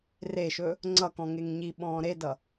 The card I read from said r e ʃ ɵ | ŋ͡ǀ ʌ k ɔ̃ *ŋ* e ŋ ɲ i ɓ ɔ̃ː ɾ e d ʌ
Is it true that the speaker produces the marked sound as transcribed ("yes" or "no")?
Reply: yes